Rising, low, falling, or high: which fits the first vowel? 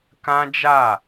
high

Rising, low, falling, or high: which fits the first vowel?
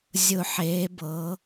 low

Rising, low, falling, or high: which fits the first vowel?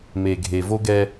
low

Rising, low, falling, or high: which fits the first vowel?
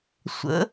rising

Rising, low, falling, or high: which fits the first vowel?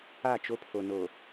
falling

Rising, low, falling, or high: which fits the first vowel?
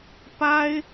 high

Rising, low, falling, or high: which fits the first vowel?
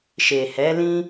low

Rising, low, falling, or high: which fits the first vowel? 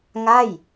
falling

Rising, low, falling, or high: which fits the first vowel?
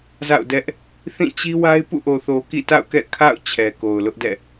falling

